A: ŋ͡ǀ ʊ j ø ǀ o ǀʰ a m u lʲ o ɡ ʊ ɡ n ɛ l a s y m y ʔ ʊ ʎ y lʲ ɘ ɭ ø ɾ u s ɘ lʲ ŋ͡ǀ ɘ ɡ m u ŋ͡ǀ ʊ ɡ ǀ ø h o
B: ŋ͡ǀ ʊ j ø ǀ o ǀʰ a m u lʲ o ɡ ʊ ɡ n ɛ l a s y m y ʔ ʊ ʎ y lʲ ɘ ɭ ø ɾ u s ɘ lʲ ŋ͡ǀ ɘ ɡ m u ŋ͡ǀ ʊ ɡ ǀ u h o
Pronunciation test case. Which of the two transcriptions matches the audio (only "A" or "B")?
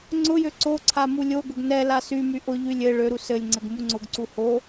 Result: B